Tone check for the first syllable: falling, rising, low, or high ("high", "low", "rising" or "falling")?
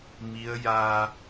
rising